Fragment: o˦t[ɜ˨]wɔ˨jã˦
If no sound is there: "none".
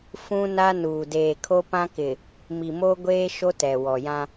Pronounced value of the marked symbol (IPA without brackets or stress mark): ɛ˨